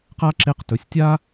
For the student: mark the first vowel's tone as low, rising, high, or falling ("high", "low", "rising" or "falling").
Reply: high